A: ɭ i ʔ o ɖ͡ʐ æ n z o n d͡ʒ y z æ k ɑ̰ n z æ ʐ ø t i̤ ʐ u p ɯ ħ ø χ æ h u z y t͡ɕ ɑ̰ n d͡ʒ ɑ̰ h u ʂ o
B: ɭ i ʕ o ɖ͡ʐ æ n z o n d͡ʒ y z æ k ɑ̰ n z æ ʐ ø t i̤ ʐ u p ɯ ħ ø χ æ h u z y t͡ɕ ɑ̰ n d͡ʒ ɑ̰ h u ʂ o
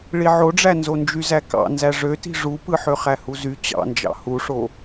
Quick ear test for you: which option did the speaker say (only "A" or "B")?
B